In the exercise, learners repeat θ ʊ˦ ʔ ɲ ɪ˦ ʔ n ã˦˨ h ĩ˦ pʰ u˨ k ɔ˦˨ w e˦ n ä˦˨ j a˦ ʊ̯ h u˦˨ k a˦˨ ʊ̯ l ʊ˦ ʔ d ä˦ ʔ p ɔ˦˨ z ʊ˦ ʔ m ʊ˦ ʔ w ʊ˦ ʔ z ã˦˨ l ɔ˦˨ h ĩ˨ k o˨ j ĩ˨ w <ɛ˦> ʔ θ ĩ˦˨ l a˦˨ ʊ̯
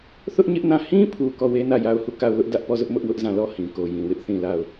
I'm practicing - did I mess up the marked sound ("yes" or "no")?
yes